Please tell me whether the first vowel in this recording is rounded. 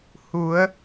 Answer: yes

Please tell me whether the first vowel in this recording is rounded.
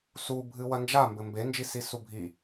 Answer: yes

